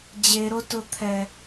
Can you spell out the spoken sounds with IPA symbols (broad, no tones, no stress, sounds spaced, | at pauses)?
d͡ʑ e ɾ o t ʊ t̪ʰ ɛ